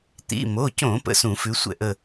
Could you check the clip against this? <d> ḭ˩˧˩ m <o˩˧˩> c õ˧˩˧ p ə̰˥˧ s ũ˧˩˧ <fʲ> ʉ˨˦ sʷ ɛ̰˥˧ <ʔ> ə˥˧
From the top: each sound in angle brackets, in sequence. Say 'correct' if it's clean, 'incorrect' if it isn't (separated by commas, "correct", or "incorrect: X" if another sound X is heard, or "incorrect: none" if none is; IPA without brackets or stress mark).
incorrect: t̪, correct, incorrect: f, correct